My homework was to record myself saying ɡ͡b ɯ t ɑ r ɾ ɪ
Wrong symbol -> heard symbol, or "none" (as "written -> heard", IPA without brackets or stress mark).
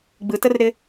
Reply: ɑ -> ə